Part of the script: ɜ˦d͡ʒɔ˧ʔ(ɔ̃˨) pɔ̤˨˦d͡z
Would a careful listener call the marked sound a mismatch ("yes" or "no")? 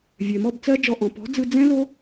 no